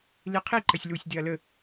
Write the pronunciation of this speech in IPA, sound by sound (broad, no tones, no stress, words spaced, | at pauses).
liqʰi ǃɐsʲlusʲ deɐ̯lə